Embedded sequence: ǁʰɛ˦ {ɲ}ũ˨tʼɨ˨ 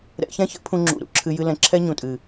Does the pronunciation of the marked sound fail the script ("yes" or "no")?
no